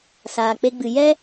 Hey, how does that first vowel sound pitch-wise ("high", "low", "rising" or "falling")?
low